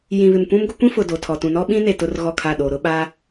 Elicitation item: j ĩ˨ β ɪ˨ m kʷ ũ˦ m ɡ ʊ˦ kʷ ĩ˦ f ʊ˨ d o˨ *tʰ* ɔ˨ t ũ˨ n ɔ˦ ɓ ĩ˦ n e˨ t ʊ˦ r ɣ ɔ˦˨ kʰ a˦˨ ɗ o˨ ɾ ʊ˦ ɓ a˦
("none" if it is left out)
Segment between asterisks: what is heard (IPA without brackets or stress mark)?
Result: tʰ